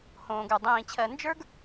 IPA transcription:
h õː˨ ɡ ə˞˨ dˤ ĩː˨ t͡ɕʰ ɜ˨ n d͡ʒ ə˞˦ ɡ

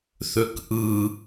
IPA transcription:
θ ø k ʔ ɯ

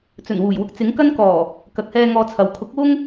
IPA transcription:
t͡s ɵ˨˩ n w uː˨˩ j w ʊ˧ k̚ t͡s ɪ˨˥ ŋ k ɐ˥ n k ɔː˨˩ | k ɐ˨ k̚ h ɛː˧ ŋ ɔː˧ t͡sʰ ɐ˨ w kʰ ʊ˨˥ k̚ w ʊ˥ ŋ

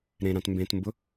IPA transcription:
ɾ ẽ ɾ ã t m b ẽ t m b ʊ

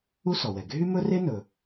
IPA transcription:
u˥ s ɔ˩ w ɛ˩ ɡʱ y˥ m ɵ˥ r e˥ n ɵ˩

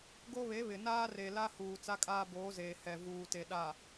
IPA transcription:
ɡ o˦ β e˨˦ β ɪ˨ n aː˦ r e˨ l a˦ h uː˨ t͡s a˦ kʼ aː˦ b oː˨˦ z eː˨ h ɛ˨ v uː˨ t e˨ ɗ a˨

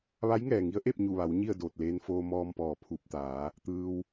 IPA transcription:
ʋ a˧˥ j ŋ ɛː˩ ŋ i˧˥ ə̯ ʔ e˥˨ p̚ ɲ u˧˩ ʋ a˩˧ w ɲ i˥˨ ə̯ d oː˧˩ t̚ l eː˧ n f oː˧ m ɔː˧ m p ɔː˩ pʰ uː˧˩ p̚ t̪ aː˩˧ | t̪ ɯː˧ w

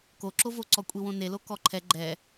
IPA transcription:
k o ǁ o v o ǀ ɔ kʷʼ i w õ n e l o k ɔ ǃʰ ɛ ɡ͡ǃ ɛ

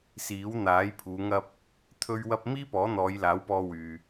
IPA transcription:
s iː˨˥ w n̪ aː˨˥ j pʰ uː˨˧ ŋ ɐ˧ p̚ | t̪ʰ ɵ˥ ɥ w ɐ˥ p̚ m iː˥ p ɔː˨˥ n̪ ɔː˨˧ j l aː˨˥ w p ɔː˧ w yː˨

